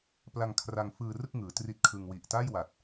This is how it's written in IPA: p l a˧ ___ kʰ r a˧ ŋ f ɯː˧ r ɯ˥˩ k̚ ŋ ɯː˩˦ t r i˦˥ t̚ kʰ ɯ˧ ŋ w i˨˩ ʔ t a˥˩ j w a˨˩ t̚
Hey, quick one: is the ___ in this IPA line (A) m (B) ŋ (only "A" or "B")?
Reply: B